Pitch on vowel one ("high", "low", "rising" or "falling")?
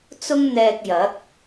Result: high